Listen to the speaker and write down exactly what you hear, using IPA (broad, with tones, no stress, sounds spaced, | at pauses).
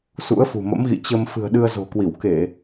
s ṵ˧˥ ə̯ f ṳ˨˩ m ə̰˧˥ m ɣ ḭ˧˨ t͡ɕ ə˧ m f ɨ̤˨˩ ə̯ ɗ ɨ˧ ə̯ z o̤˨˩ k w i˧˩ w k e˧˩˨